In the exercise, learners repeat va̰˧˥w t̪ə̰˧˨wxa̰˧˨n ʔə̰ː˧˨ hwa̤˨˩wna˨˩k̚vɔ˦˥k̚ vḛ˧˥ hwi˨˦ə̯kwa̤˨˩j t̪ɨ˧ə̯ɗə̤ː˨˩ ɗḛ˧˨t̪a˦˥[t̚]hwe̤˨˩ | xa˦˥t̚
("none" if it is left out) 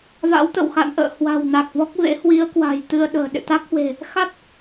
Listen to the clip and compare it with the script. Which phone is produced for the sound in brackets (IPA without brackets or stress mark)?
k̚